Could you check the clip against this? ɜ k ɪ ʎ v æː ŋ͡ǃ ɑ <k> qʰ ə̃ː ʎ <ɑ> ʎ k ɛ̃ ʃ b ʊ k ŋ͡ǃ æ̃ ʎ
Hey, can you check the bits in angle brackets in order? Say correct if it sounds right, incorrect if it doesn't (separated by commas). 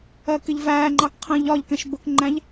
correct, incorrect